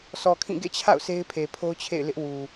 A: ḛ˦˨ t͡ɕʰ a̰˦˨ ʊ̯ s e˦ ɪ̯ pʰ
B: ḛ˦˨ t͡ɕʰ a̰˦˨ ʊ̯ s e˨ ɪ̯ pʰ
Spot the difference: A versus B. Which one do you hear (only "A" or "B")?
A